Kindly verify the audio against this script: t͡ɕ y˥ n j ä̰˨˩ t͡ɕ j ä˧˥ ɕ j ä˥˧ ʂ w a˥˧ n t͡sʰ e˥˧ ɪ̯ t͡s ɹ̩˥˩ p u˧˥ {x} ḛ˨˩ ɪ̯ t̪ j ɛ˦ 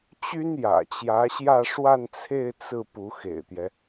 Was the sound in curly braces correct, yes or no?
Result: yes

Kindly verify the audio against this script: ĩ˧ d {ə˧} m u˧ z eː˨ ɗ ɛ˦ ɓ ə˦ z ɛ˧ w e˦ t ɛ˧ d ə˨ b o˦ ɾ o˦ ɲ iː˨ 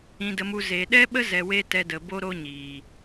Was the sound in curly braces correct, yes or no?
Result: yes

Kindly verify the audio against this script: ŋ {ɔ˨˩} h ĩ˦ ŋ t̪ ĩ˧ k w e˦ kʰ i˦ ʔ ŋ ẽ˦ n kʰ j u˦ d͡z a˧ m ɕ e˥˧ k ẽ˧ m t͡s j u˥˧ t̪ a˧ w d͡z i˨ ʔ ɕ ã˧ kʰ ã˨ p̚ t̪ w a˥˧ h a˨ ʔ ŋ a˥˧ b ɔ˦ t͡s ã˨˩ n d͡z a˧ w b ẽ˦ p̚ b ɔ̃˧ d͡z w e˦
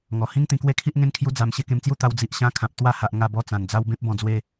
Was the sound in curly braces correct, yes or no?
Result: yes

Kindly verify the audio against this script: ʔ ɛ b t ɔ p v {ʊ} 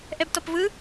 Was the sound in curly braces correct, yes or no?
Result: no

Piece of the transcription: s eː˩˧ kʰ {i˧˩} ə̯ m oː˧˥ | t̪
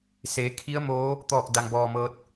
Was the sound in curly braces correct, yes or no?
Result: no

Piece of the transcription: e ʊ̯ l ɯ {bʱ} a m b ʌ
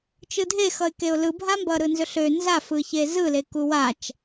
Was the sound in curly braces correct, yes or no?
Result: yes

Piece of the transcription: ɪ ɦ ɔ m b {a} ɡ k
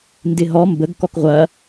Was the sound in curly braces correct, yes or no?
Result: no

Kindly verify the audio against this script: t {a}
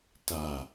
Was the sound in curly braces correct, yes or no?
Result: yes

